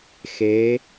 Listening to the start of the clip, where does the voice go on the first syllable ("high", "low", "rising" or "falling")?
rising